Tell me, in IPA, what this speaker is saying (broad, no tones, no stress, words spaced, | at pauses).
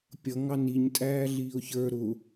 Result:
pʲʌ ŋɑniɲ tʼæːɮiːo̯çə˞ ɾʊ